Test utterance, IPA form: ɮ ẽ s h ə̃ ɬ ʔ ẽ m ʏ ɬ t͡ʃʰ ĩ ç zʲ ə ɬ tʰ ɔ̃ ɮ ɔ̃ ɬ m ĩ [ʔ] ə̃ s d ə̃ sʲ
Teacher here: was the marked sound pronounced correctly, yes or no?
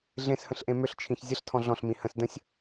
no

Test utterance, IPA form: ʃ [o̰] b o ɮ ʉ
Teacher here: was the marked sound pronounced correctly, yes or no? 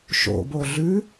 yes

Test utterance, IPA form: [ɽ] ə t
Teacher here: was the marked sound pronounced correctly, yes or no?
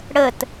yes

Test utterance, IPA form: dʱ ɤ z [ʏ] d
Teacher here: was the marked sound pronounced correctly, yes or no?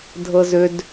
yes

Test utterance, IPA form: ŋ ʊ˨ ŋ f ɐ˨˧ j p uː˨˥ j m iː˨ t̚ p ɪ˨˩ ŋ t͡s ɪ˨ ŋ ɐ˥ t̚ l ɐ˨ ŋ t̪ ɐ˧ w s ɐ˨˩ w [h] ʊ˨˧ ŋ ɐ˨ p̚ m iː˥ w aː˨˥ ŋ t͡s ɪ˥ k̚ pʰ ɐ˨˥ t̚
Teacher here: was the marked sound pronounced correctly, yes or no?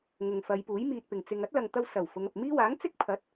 no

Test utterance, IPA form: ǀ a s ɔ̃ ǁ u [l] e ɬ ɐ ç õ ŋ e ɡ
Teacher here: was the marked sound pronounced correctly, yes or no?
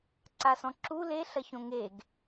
yes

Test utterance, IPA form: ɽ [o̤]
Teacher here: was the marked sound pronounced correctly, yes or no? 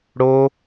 no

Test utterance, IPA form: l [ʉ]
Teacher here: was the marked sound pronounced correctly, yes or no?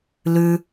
yes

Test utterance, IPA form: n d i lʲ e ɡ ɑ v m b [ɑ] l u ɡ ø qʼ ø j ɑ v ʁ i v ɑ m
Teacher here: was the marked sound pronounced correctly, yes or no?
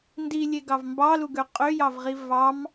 yes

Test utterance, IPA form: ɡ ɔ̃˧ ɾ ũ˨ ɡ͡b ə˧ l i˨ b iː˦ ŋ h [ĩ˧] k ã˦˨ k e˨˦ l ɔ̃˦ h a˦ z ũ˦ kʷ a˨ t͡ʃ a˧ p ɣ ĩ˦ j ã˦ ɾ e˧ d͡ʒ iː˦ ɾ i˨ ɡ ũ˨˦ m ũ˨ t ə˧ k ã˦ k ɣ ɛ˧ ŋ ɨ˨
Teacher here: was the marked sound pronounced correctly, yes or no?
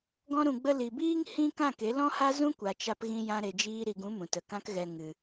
no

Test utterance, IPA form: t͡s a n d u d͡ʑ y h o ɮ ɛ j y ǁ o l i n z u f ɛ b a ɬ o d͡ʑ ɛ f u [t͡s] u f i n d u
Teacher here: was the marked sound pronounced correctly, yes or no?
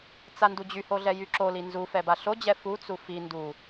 yes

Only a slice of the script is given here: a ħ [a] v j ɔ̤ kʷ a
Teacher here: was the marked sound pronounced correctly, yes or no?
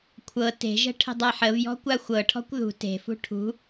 no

